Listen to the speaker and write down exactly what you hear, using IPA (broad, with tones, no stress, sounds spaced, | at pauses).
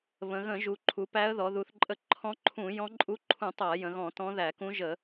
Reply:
β ə̃˩˧ ɣ ə̃˧˩˧ ʒ u˩˧ ǃʰ u˩˧ p æ˧˥ ə̯ ð ɔ˩˧ ð u˩˧ θ ǃʼ ə˧˥ ǃʰ ɔ̃˧˥ ǃʰ ũ˧˩˧ j ɔ̃˧˥ ǃʼ u˧˥ ǃʰ ũ˧˩˧ tˤ a˧˩˧ j ə̃˩˧ ɣ ɔ̃˧˩˧ t ɔ̃˧˥ ð æ˧˩˧ k ũ˧˥ ʒ ə˧˩˧